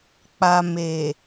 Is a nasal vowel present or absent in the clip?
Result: absent